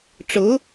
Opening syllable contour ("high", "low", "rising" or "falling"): rising